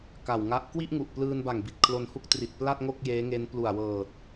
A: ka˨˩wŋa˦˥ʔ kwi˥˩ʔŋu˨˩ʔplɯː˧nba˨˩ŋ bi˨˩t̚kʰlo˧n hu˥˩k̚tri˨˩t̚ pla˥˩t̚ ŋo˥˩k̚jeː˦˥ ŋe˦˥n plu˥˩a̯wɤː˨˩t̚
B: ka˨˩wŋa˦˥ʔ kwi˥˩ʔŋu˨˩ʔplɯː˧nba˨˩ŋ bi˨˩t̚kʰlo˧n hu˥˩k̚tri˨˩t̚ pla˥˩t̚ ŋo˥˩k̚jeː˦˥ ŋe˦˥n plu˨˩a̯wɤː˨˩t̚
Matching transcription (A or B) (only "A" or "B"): B